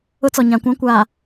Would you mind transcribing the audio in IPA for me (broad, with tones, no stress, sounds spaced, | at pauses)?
ʊ˦ t͡s ɔ˨ ɲ ã˨ kʷ ã˦ kʷ aː˨